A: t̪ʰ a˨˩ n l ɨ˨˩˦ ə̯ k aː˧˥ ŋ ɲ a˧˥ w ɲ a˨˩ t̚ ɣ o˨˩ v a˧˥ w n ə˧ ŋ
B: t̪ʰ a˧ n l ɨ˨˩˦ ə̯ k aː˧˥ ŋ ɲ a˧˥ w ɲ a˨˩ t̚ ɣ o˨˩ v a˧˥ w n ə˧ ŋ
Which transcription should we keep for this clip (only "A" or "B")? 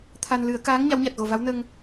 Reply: B